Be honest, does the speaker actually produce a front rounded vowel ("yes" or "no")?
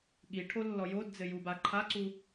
no